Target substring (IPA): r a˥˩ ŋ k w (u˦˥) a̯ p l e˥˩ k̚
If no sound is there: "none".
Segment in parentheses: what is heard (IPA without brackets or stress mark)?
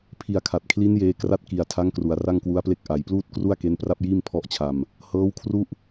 u˦˥